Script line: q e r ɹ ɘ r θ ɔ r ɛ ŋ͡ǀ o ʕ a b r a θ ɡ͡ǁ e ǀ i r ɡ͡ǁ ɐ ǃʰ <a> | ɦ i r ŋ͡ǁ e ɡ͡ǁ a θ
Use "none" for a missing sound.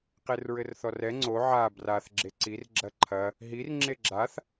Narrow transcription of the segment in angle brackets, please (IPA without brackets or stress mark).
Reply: ɐ